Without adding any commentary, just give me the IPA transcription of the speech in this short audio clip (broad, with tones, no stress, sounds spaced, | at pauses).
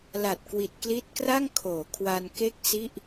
l a˨˩ t̚ k w i˨˩ t̚ k l i˦˥ t̚ k r a˥˩ ŋ kʰ oː˩˦ kʰ w a˧ n k e˥˩ k̚ s i˥˩ ʔ